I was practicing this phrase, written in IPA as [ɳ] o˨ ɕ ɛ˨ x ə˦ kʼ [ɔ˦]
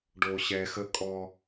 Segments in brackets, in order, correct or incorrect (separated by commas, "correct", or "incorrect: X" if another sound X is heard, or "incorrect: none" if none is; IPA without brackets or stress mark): incorrect: ɖ, correct